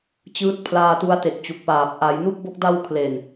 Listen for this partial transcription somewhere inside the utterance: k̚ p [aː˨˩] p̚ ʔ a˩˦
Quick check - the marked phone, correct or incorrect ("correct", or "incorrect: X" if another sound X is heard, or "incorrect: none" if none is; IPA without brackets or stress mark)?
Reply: correct